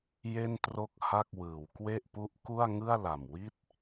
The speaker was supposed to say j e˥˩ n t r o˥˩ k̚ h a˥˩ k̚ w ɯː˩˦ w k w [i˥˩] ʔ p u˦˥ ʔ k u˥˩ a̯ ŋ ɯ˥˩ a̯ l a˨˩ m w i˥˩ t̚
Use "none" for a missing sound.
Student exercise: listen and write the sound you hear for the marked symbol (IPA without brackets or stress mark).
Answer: e˥˩